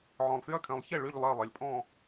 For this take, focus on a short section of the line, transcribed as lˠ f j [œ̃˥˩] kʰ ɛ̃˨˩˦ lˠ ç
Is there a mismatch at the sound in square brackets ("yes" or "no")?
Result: yes